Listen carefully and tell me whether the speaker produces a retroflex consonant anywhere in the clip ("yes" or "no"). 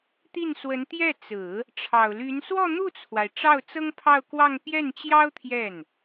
yes